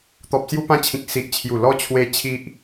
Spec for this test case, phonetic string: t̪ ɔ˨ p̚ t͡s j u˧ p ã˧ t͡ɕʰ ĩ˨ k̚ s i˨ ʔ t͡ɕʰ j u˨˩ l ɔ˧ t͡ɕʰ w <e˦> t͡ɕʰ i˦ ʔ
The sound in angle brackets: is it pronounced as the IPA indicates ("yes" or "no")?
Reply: yes